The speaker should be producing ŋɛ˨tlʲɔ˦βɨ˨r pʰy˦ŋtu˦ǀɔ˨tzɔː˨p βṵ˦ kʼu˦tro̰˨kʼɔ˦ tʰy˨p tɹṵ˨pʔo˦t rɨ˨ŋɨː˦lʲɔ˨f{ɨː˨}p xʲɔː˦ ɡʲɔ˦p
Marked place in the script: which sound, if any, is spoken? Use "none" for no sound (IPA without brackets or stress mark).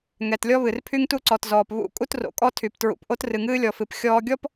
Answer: ɨ˨